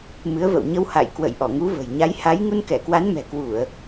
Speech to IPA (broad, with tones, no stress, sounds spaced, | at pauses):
m ɨ˨˦ ə̯ v ə̰˧˨ w ɲ ə˧ w h a̰˧˨ j k w ə̰˧˨ j ʔ ɔ˧˩ ŋ u˨˦ v ə̤˨˩ j ɲ a˨˦ j h a˨˦ j ŋ u˧ n k ɛ˧˩ k w a˨˦ n m ɛ̤˨˩ k w u˧˩˨ ə̯